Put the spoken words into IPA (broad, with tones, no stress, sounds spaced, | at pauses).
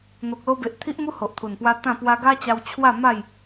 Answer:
n̪ o˨ k̚ l o˧ b e˨ ʔ t̪ʰ i˦ ʔ m u˦ h o˨ ʔ t̪ʰ u˨˩ n p w a˧ t̪ ã˥˧ p w a˧ ɡ a˦ t͡ɕ a˧ w t͡ɕʰ w a˥˧ m a˥˧ j